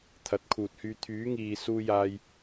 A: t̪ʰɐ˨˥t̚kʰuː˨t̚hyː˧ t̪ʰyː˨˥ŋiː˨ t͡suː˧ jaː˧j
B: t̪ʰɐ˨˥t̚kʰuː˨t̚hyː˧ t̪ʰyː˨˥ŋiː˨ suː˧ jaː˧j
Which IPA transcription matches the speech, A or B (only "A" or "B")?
B